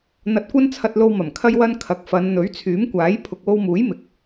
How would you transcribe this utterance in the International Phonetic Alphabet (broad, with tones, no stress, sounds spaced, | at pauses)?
n̪ ɐ˧ t̚ kʷ ɐ˥ n t͡sʰ ɐ˧ t̚ l o˧ w m ɐ˨˩ m kʰ ɐ˥ j w ɐ˥ n kʰ ɐ˨˥ k̚ f ɐ˨˧ n n̪ ɵ˨˥ ɥ t͡sʰ yː˨˥ m kʷ aː˨˥ j pʰ ʊ˨ k̚ w o˧ w m uː˨˥ j m ɪ˨˥ k̚